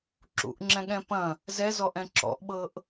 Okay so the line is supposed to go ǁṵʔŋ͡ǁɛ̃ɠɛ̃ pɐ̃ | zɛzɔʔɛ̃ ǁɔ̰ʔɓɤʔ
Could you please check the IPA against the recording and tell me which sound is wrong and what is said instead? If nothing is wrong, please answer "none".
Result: none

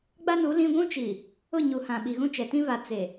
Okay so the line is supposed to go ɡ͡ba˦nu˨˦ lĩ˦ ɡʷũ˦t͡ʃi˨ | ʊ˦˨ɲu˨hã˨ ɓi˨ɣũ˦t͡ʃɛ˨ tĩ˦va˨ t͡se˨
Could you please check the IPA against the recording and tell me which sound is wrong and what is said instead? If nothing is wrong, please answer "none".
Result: none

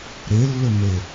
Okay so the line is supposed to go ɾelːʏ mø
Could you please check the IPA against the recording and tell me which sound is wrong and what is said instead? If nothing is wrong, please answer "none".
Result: ø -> e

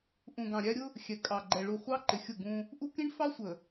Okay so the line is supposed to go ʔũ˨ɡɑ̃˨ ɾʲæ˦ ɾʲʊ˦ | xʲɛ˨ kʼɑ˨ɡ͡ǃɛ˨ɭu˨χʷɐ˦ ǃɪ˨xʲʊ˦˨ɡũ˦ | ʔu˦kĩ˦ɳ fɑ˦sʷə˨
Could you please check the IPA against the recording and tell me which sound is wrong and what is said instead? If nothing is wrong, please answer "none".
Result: ɐ˦ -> ɑ˦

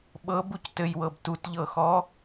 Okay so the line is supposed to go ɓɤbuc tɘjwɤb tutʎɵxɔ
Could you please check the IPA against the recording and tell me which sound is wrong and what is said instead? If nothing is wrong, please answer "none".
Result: ɵ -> ɤ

